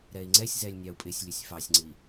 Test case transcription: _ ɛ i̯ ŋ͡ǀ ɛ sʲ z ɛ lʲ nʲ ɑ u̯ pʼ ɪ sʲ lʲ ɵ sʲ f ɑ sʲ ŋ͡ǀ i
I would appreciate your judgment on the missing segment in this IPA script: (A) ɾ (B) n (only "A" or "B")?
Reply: A